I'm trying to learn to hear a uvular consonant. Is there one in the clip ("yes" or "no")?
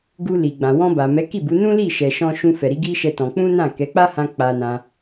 no